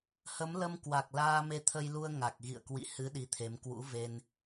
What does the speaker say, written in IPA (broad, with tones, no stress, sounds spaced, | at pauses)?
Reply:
h ə˨˦ m l ə˧ m k w a˨˩ k̚ l aː˧ m e˧ t̪ʰ ə˧ j l u˧ ə̯ ŋ a˨˩ k̚ ɣ ḭ˧˨ ə̯ k w ḭ˧˨ h ɨ˨˦ ɗ i˨˦ t̪ʰ e˨˦ m k w ṵ˧˥ v e˧ n